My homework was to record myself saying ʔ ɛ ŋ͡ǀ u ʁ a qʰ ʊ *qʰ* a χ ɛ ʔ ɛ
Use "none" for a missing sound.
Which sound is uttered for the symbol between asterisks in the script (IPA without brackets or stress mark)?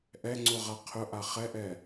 ʔ